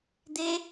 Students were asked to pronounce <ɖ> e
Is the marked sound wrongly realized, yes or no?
yes